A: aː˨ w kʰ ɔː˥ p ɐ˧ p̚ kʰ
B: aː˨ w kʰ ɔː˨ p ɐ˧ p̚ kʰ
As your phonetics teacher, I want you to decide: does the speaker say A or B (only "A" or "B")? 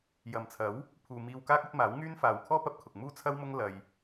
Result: A